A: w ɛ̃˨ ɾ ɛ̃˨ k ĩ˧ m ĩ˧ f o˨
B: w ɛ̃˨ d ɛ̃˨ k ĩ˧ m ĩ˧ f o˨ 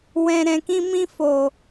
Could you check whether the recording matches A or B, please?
A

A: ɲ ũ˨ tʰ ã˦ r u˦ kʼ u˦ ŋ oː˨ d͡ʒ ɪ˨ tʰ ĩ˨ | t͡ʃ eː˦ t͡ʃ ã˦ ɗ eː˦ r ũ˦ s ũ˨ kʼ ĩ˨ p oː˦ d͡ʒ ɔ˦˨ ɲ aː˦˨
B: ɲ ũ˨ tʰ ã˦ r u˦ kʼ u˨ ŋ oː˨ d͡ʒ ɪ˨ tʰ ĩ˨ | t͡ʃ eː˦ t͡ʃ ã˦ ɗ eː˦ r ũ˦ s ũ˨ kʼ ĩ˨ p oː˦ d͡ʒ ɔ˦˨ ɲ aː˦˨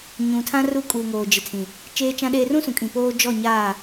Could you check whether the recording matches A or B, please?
B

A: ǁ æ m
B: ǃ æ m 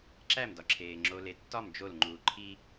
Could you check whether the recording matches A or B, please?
A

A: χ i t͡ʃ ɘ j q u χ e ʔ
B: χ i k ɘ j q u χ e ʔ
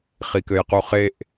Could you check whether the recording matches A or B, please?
B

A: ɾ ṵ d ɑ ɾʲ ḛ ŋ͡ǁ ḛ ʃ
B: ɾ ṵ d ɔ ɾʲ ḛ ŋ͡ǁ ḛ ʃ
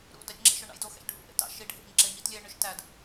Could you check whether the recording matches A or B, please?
A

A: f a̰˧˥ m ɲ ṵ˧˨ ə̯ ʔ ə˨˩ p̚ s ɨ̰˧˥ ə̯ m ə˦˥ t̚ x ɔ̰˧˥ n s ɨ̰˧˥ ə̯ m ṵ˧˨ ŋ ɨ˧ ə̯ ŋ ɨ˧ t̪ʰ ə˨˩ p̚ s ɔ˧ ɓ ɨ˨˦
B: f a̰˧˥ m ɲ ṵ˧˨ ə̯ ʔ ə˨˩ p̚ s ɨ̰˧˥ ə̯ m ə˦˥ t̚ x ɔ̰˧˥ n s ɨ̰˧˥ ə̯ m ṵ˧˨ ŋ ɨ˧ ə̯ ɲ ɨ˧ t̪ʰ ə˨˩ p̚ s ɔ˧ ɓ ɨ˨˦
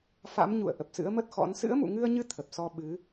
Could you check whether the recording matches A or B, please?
B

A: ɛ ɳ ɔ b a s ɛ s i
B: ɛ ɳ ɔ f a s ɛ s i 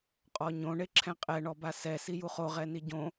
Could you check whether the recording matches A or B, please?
A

